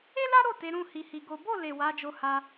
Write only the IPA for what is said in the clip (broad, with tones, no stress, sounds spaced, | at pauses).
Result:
e˦ l a˦ ɾ o˦˨ t e˨˦ ɾ ũ˦˨ h i˧ h i˧ ɡ o˦ b o˦˨ l e˨ w a˨˦ d͡ʒ o˧ h a˧